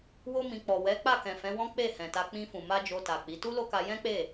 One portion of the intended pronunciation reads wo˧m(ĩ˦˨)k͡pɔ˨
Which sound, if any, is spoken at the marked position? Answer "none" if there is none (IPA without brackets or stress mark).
ĩ˨